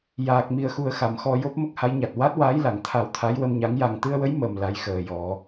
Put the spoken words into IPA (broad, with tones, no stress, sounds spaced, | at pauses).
j aː˨˩ k̚ m i˨˩ ə̯ x u˨˩ ə̯ x a˨˩˨ m x ɔ˧ j o˦˥ p̚ m ə˦˥ k̚ h a˧˥ j ɲ a˨˩ t̚ w a˦˥ t̚ w aː˧˥ j l a˨˩˨ ŋ t̪ʰ a˨˩˦ w t̪ʰ a˧˥ j w ə˧ m ɲ a˧˥ ŋ j a˨˩ ŋ t̪ ɨ˧ ə̯ w ə˧˥ j m ə˨˩ m l a˧˥ j x əː˨˩ j ɔ˨˩˦